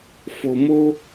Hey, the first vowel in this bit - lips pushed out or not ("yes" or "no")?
yes